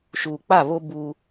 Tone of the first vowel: low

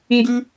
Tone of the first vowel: high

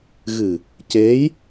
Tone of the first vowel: low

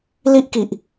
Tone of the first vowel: high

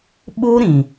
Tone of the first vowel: high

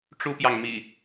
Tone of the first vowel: high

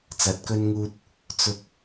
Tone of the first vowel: rising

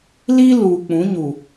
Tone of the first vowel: high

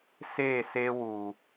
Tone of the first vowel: falling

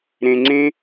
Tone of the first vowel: low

